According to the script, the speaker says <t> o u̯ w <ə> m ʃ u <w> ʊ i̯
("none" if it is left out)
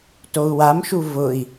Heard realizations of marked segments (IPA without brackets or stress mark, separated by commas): t, a, v